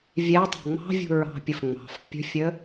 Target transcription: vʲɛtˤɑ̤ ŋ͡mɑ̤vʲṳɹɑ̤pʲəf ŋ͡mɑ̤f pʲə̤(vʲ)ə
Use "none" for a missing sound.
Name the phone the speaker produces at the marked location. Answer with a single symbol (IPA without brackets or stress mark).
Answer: fʲ